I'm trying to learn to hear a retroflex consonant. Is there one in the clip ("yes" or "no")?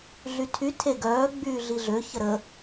no